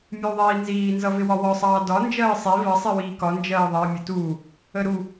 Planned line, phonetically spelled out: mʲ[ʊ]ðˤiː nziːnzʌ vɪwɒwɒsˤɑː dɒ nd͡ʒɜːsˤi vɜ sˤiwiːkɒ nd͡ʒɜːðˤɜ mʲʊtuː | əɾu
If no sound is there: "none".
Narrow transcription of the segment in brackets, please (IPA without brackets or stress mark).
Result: u